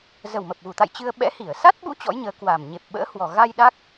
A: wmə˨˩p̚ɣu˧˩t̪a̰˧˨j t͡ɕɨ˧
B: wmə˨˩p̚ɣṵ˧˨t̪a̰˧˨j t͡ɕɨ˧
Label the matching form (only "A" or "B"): A